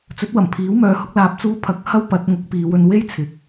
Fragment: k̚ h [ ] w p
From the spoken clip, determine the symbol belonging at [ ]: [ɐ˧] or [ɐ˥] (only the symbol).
ɐ˥